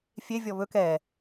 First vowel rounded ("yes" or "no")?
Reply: no